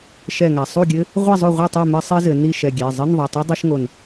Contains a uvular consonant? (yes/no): yes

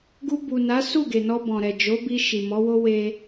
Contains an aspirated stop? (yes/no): no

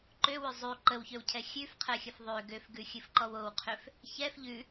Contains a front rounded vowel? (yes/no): yes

